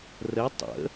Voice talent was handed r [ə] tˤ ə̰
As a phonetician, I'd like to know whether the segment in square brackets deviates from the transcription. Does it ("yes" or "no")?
no